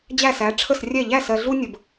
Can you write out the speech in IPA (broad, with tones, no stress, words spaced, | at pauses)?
d͡ʑæ˥˩sæ˩˥ ʈ͡ʂʰə˥˩srʲɛ˥˩ ʎæ˥˩sɜ˨ɮu˦ nʲə˨b